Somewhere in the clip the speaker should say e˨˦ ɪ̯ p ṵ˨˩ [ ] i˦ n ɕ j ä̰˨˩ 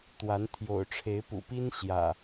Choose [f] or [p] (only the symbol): p